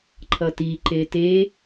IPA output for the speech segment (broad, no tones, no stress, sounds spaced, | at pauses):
ǃʰ ʌ t i ǃ e t e